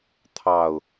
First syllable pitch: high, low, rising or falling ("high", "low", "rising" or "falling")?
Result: low